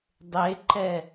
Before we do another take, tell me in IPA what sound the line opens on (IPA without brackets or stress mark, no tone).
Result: dˤ